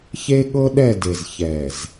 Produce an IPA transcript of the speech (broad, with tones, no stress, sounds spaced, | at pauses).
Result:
ç e˦ ɠ ɤ˦ ɗ ɛ˦˨ d e˨ z ç ɛ˨ z